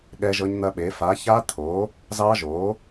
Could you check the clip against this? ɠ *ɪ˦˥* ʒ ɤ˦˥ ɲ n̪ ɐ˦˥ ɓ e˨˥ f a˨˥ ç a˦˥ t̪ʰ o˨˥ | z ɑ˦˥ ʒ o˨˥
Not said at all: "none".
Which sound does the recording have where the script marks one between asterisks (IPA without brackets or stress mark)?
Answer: ɛ˦˥